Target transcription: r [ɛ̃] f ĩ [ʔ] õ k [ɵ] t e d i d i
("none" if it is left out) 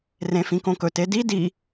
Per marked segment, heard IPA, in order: ẽ, k, ɵ

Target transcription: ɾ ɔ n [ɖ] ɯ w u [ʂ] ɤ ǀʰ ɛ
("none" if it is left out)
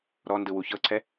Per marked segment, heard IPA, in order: d, ç

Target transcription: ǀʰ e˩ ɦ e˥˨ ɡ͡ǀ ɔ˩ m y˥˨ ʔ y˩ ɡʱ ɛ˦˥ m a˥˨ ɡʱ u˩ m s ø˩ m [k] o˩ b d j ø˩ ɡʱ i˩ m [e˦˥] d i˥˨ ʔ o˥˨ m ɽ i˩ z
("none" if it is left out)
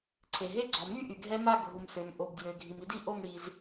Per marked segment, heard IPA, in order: ʔ, i˦˥

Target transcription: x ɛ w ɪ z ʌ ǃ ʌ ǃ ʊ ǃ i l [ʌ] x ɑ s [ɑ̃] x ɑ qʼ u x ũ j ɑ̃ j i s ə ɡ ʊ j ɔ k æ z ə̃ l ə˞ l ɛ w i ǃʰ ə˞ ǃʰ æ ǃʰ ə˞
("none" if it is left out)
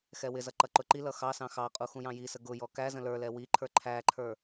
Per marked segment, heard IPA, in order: ʌ, ɑ̃

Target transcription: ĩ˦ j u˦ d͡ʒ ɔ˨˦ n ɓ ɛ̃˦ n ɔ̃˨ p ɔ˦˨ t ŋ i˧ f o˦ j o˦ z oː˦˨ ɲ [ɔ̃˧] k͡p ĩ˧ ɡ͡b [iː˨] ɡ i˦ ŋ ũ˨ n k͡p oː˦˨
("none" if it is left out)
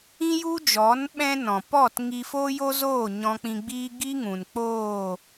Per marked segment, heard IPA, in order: ɔ̃˧, iː˦

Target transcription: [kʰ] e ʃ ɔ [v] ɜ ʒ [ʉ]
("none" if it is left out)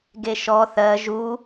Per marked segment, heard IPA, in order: ɡ, θ, u

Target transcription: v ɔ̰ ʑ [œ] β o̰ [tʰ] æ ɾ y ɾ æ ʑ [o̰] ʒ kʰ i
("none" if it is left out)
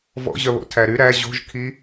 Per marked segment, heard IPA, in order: œ, tʰ, o̤

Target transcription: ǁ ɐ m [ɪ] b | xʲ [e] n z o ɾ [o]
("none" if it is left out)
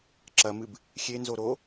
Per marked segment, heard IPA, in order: ɨ, e, o

